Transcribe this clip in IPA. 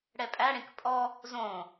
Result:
ɽ ɛ pʼ æ ɽ ẽ k pʼ ɔ | z õ

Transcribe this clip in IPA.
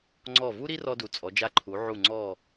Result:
ŋ͡ǀ ɔ˧˩ v u˥ ɾ i˥ r ɔ˧ d u˩˧ t͡sʼ ɔ˩˧ d͡ʒ a˧ ǃʰ u˩˧ ʕ u˧˩ ŋ͡ǀ ɔ˧˩

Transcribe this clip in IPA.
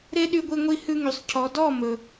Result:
ɾ e˦ ɗ y˧ ɡʷ i˧ ŋʷ i˧ h ʉ˧ ŋ y˨ sˤ cʰ ɔ˨ d ɔ˦˨ m ɵ˨

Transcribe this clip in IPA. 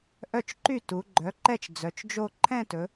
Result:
ʔ œ˥˩ t͡ʃ ǃ y˥˩ t u˩˧ ɡ͡ǃ œ˩˥ ǃ ɛ˥˧ t͡ʃ d͡z œ˩˧ t͡ʃ d͡ʒ o˥˧ ǃʰ ɛ̃˥˧ t ɵ˩˧

